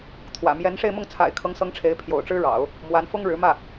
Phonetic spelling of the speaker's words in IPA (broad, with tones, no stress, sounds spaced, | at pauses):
t̪ʰ w ä̰˨˩ m j ɛ˧˥ n ʂ e˥˧ ɪ̯ m ʊ˥˩ ŋ t͡sʰ a̰˨˩ ɪ̯ kʰ ɤ˧˥ ŋ s ɤ˧˥ ŋ ʈ͡ʂʰ e˧˥ ɪ̯ pʰ j o̰˨˩ ʊ̯ ʈ͡ʂ ɻ̩˥ ɻ ɑ̰˨˩˦ ʊ̯ | m w a˧˥ n f ʊ˥ ŋ ɻ ɻ̩˧˥ m ä˥˩